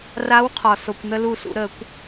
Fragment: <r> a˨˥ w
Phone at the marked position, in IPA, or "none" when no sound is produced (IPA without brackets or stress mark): r